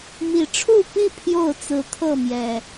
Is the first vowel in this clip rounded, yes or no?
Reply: no